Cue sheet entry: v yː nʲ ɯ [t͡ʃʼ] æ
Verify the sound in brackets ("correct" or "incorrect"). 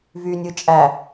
correct